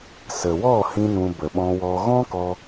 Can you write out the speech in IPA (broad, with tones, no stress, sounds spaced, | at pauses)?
s ə˨ w ɔ˦˨ h ĩ˧ n ũ˧ b ə˨ ɓ ɔ̃˧ w ɔ˧ ɣ ɔ̃˦ k ɔ˧